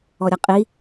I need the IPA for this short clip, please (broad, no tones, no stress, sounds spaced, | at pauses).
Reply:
ɔ ɾʲ ʌ qʼ i